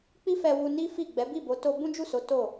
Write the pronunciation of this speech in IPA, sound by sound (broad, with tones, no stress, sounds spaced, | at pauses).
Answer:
k͡p i˦ f ɛ˧ w u˧ n i˦ f i˦˨ ɡ͡b ɛ˨˦ b i˦˨ b o˨˦ t o˧ b ũ˦ d͡ʒ u˦˨ s o˨˦ t o˦˨